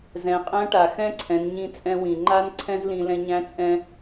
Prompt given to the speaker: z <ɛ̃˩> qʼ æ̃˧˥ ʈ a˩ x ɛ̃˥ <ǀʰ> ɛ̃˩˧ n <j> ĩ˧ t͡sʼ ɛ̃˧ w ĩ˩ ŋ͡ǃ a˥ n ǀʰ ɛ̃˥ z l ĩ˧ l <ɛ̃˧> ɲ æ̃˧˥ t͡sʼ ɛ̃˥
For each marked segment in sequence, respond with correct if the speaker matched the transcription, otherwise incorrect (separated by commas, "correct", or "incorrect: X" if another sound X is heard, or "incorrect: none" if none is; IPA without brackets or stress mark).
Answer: incorrect: ɛ̃˩˧, correct, incorrect: ɲ, correct